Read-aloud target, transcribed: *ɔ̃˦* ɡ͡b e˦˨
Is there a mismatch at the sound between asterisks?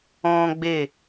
no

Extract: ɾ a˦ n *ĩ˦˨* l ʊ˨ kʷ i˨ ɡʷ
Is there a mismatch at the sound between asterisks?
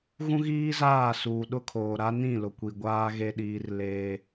no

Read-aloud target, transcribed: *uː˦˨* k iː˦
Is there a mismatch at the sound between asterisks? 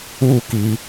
no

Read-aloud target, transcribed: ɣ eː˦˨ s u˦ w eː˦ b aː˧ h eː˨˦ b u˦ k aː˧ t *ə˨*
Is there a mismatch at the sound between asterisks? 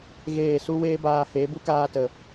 no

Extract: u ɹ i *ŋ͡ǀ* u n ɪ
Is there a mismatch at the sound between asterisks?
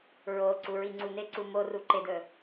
no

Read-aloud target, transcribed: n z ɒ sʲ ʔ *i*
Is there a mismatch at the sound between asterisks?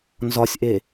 yes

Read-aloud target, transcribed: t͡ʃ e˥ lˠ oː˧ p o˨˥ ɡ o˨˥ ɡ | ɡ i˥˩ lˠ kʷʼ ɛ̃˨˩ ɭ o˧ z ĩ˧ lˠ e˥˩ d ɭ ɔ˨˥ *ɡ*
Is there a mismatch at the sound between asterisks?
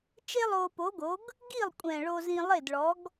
no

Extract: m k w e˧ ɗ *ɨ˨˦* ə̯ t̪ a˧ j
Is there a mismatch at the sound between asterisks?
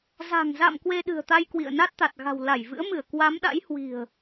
yes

